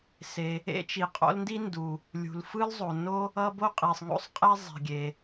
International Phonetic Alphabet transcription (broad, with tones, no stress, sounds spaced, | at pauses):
s e˩ | ḛ˥ t͡ʃ i˩ qʼ o̰˥ l n d i˥ n d u˩ | lʲ ṳ˩ l f ɯ˥ l zˤ o˩ n o˥ | ʌ˥ b o˥ qʼ i˩ sˤ ŋ o̰˥ sˤ qʼ e˥ zˤ i̤˩ ɡʲ e˩